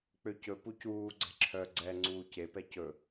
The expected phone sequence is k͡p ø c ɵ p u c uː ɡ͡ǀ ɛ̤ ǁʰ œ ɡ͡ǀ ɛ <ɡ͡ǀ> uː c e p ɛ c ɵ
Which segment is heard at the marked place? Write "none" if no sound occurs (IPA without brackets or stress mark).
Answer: ŋ͡ǀ